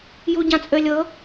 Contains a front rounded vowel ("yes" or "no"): yes